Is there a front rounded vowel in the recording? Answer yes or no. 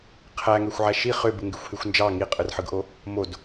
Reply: yes